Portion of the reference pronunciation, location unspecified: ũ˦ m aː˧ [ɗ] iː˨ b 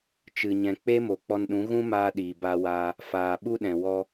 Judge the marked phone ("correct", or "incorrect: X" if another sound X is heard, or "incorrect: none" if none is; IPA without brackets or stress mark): correct